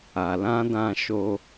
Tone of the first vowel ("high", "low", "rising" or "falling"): low